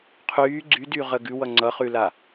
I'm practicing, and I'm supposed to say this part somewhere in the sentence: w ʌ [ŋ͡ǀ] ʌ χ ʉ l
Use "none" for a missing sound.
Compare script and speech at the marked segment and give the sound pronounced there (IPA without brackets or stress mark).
ŋ͡ǀ